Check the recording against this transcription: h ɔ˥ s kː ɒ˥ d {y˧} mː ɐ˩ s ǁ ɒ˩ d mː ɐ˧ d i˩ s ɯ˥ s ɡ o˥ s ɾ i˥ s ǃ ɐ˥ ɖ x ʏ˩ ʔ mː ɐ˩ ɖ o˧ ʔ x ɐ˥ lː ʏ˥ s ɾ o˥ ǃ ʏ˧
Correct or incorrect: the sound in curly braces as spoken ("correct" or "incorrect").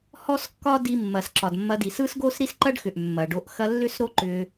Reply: incorrect